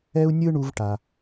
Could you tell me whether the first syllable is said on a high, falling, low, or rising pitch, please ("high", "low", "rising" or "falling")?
high